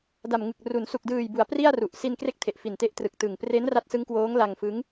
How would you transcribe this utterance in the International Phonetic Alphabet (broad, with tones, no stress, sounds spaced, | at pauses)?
d a˨˩ m ŋ ɯ˨˩ k̚ r u˩˦ n s u˨˩ k̚ d ɯː˨˩ j b u˩˦ a̯ p r i˥˩ a̯ r u˨˩ ʔ s i˧ n k r e˥˩ k̚ tʰ e˨˩ ʔ f i˨˩ n t e˦˥ ʔ t r ɯ˨˩ k̚ t ɯ˨˩ ŋ p r e˦˥ n r a˦˥ t̚ s ɯ˦˥ ŋ k w oː˦˥ ŋ l a˧ ŋ f ɯ˦˥ ŋ